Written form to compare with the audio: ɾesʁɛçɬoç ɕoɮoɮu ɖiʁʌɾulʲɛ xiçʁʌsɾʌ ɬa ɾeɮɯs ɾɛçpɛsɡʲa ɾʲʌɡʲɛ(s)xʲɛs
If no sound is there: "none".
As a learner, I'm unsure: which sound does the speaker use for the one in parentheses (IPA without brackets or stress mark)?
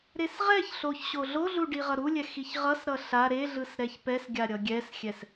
s